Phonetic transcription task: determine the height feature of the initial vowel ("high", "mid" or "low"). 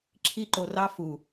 high